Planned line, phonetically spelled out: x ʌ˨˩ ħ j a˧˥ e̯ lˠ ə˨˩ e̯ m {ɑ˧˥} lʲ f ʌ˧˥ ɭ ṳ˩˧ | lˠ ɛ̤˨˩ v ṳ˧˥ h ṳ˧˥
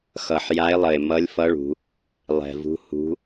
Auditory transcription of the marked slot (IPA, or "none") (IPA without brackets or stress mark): ʌ˧˥